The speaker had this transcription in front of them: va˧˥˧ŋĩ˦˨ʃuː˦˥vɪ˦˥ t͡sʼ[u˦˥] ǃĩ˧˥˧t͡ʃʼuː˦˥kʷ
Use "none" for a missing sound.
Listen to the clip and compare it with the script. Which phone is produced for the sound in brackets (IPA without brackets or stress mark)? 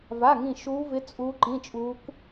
u˦˥